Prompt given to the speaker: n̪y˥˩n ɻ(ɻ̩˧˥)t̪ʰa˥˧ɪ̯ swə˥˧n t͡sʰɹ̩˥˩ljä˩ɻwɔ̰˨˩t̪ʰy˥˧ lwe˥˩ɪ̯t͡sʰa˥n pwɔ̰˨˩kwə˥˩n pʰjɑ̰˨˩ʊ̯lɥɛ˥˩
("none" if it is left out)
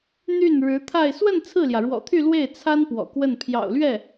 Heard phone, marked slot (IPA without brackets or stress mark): ɻ̩˧˥